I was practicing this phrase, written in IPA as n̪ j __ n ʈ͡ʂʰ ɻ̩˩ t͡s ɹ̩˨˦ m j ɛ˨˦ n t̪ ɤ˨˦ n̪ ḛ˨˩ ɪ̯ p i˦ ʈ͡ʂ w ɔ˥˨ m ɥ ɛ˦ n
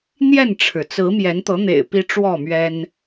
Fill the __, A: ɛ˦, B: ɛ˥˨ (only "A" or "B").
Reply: B